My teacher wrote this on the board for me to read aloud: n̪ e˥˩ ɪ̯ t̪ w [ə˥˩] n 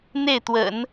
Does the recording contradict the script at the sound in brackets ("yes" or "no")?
yes